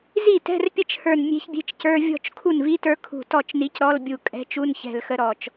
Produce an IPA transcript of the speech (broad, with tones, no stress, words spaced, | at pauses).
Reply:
zi˥˩tɛ̤˧˥˧rpʲə˥˩t͡ʃhə˞˧˩n mʲe̤˧˥çbʲe̤˧˥˧t͡ʃcə˞˧˥˧ vʲɔ̤˥˩t͡ʃ kʰu˥˩nvi˧˥˧tə˞˧˥ kʰṳ˧˩ tɔ˥˩t͡ʃni˧˥c ɾɔ˧˥˧lbʲu˧˩ kʼɛ̤˧˥t͡ʃu˧˥˧nçɛ̤˧˩lxə˧˥ ɾɔ˧˩t͡ʃ